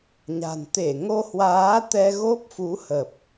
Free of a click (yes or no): yes